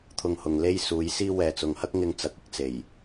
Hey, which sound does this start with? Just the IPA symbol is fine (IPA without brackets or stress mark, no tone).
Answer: t̪ʰ